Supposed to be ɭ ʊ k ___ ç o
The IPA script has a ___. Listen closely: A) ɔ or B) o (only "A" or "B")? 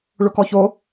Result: A